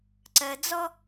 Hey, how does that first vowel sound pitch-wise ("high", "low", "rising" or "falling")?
low